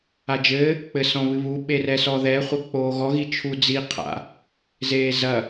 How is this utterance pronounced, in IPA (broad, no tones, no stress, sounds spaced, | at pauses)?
a d͡ʒ ɘː | k͡p ɘ s ɔ̃ β ɨ β u ɓ e r ɛ s ɔ ð ɛ χʷ ɐ k͡p oː ɣ ɔ ɣ i t͡ʃʰ u d͡z i qʰ a̰ | z eː z ɐ